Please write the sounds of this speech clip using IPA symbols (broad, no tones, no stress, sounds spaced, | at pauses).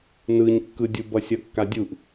n ɯ ɲ kː ɯ dʲ u b ʌ sʲ ʌ kː a dʲ u ʔ